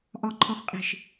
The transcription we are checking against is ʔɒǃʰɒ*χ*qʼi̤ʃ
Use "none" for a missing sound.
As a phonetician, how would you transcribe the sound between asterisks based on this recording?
χ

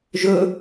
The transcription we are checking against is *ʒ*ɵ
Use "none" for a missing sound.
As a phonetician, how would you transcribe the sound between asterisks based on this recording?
ʒ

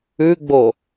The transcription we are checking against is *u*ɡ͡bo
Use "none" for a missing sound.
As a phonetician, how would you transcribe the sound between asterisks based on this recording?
ʉ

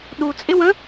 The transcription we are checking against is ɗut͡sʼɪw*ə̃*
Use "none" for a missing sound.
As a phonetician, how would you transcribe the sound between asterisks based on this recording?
ə̃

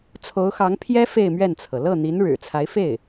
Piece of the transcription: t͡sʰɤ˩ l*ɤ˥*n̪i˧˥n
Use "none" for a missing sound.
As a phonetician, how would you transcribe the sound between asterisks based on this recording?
ɤ˥˩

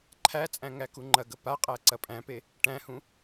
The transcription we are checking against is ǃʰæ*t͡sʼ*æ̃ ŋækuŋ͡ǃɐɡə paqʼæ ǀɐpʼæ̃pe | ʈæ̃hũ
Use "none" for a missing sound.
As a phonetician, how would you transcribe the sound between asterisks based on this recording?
t͡sʼ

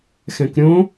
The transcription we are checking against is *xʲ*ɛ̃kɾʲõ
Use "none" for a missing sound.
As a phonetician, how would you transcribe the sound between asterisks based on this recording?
x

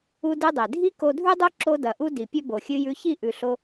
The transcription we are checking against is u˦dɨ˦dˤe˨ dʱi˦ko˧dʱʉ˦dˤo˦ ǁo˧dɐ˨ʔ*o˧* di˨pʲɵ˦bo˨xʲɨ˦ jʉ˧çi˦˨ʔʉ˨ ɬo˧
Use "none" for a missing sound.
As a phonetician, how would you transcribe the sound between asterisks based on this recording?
u˧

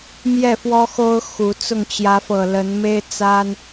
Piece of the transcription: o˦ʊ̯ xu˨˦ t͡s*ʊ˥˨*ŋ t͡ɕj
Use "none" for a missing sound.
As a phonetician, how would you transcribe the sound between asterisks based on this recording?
ʊ˥˨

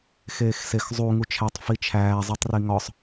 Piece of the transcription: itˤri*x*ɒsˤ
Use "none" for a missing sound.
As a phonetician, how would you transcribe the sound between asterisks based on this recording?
ŋ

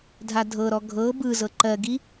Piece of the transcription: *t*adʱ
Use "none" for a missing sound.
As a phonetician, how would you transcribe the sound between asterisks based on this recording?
dʱ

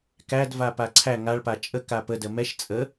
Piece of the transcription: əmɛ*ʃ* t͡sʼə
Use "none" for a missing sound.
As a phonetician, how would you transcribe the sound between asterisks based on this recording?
ʃ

